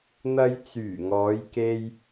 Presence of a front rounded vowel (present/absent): present